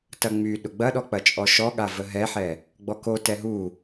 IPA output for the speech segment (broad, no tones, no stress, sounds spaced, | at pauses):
t ɐ ŋ͡m y ɗ ʊ ɡ͡b ɐ ɗ ɔ k͡p ɐ t͡ʃʼ ɔ ʃ ɔ ɠ a v ə ɦ ɛ ħ ɛ | ɡ͡b ɔ k o t ɛ ɦ u